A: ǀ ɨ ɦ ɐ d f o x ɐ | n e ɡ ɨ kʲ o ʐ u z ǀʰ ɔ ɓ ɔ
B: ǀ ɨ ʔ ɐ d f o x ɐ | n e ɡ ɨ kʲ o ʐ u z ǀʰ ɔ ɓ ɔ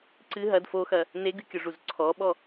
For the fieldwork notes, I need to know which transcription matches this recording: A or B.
A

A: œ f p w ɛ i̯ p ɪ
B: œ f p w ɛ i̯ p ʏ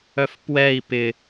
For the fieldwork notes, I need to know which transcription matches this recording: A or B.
A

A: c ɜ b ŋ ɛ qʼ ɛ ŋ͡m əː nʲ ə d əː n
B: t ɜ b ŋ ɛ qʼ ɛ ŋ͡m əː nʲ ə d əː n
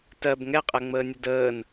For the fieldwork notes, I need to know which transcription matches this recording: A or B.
B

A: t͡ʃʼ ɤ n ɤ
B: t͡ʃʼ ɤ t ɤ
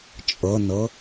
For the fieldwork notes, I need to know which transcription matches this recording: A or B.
A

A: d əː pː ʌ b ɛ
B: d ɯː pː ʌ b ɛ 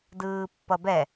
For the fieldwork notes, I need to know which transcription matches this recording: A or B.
B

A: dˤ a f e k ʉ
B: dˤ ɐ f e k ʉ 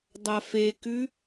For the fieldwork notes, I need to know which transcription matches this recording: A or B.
A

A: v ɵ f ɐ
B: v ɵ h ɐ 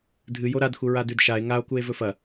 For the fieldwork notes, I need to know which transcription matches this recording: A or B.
A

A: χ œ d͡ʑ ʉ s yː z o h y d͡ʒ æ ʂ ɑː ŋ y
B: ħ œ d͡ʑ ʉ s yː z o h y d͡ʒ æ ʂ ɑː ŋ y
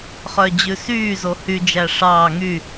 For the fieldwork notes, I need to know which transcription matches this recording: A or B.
A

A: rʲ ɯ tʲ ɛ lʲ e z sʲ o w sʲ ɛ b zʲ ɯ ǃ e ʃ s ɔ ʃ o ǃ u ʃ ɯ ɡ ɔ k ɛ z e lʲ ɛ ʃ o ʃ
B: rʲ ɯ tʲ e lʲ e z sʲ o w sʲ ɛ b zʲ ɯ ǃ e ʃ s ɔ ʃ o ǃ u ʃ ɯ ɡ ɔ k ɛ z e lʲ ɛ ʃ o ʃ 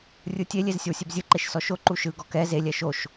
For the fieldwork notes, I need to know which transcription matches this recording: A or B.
B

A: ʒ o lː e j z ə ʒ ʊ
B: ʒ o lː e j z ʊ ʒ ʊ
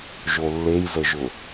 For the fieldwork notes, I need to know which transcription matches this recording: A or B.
A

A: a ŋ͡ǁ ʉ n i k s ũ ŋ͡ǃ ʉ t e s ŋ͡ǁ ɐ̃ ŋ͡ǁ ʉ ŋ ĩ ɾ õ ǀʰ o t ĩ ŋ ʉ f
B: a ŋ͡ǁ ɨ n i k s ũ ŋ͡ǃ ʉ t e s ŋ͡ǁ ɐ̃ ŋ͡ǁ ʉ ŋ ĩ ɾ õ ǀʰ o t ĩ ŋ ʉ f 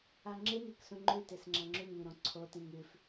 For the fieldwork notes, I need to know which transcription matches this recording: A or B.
B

